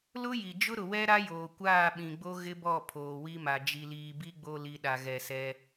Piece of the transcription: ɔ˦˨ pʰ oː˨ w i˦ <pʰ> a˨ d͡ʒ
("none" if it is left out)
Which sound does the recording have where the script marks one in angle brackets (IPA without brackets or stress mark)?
m